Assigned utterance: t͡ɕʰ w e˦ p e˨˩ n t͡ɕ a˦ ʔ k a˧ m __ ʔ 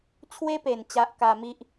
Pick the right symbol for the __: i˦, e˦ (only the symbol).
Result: i˦